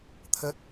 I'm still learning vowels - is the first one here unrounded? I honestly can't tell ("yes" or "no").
yes